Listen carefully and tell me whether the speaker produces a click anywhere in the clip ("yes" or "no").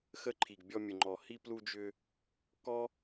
yes